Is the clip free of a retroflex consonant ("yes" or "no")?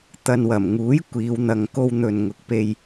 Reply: yes